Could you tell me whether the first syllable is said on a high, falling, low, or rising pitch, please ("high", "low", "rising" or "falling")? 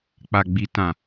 low